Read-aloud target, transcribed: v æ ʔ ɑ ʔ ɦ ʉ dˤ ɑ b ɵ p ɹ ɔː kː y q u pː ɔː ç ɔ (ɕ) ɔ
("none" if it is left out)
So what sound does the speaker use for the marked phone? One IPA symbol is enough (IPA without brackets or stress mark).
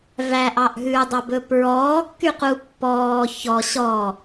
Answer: ɕ